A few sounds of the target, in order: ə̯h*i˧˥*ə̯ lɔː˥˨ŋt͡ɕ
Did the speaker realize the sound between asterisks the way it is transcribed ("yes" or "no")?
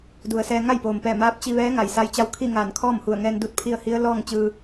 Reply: yes